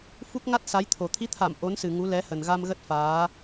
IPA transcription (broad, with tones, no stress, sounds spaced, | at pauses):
f u˦˥ k̚ ŋ a˦˥ t̚ s a˨˦ j t̪ʰ o˨˩ t̪ʰ i˨˦ t̪ʰ a˧˩ m ʔ o˨˦ n s ɨ˨˩ ŋ u˨˦ l ɛ˨˦ h ə˨˩ n ɣ a˧ m ɣ ə˦˥ t̚ f aː˨˦